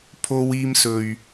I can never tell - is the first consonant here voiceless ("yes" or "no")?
yes